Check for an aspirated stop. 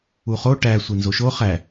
absent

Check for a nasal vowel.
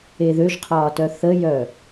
absent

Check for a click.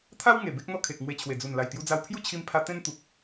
absent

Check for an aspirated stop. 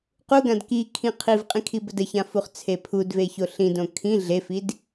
present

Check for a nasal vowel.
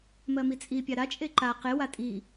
absent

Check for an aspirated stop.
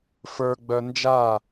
absent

